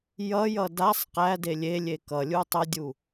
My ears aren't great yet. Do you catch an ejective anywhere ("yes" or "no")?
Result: no